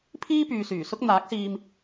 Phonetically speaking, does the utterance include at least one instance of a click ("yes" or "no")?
no